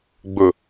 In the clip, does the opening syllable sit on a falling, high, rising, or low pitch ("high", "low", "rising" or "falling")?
low